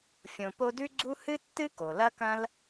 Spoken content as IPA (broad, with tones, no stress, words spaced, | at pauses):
fʲõ˨po˦dʉ˥ɡ͡ǀu˥ hɨ˥tːɨ˥ ko˩lɐ˥kɐ̃˥l